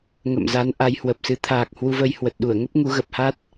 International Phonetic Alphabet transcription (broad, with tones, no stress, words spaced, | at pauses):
ŋə̰˧˨mza˨˦n ʔa˨˦jhwə˨˩p̚sɨ˨˦ t̪ʰaː˨˩k̚ hwu˧vəː˧jhwə˨˩t̚ ɗu˧˩ə̯ŋə˦˥p̚ ŋu˨˦ɣə˨˩p̚ha˦˥t̚